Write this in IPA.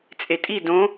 t͡sʼetʼi dõ

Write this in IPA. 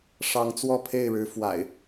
ʂɑ˨˦ŋt͡swɔ˥˨pʰe˥˨ɪ̯ɻɻ̩˨˦ fwa̰˨˩ɪ̯

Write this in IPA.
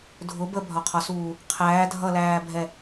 dʱʊ bəbʱɒqʰɒsuː | qʰæː dʱʌlæːbʱɛ

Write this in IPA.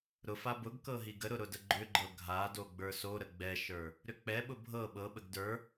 ɾʊfa bʊɡ kɤɦiɡəɾʊ ɾʊdəɡ͡ǃʏɡ͡ǃɤ ɡʱado ɡ͡bə˞soɾə ɡ͡bɛʃə˞ | ɾʏk͡pɛɓʊ bʱɤ ɓɤɓəɡ də˞

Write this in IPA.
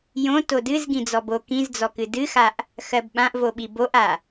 jõ todɨz ɡĩd͡zɔbo kĩzd͡zɔkɨ dɨxaʔ | xɜbɓãʔvoɓi boʔa

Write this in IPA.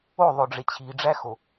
oðˤoɖ͡ʐe t͡ɕʰiɖ͡ʐæxo

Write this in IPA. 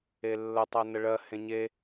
elːətˤɜ nəɭɜ hẽɲe

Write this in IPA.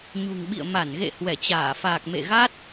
ɲṳ˨˩ŋɓḭ˧˨ə̯ ma˧˩nɣḛ˧˨ hwɛ˧˩t͡ɕaː˧˩faː˨˩k̚ mḛ˧˨ɣa˦˥t̚

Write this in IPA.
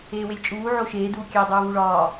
eːwelʲt͡ʃʼuː ʕoʃeː duːkʲæ dˤuːvuɭɒː

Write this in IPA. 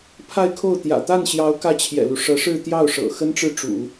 pʰa˥˧ɪ̯kʰo˥˩ʊ̯ t̪jä̰˨˩t̪a˥˩nɕjɑ˧˥ʊ̯ kä˥˩t͡ɕʰjɛ̰˨˩lu˦ ʂɤ˧˥ʂɻ̩˥˧t̪jɑ˥˩ʊ̯ʂɤ̰˨˩ xə˥nʈ͡ʂɻ̩˥˩ʈ͡ʂṵ˨˩˦

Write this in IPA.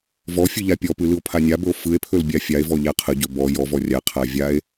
vɔfʲɯ ʎapʲɔpɯ lɯo̯pʰanʲabɵo̯ fɯe̯pʰɵl bʲafʲae̯vɔ ʎaqʰəɟɵ bɔ jɔv ɔrʲaqʰa vʲae̯

